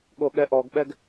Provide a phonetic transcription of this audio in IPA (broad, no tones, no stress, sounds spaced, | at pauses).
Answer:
ɠ o ɠ ɛ ʔ ɔ ɡ ɓ ɛ ɡ